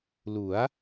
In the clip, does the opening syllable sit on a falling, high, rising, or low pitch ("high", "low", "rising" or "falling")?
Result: rising